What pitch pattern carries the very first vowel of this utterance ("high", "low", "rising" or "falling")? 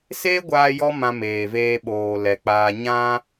high